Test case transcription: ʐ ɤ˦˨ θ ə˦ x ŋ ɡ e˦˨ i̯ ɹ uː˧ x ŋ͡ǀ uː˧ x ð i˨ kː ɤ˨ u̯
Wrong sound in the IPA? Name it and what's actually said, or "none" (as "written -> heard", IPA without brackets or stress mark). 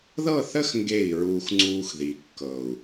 ʐ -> ð